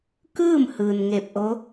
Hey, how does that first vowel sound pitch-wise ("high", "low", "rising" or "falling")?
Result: falling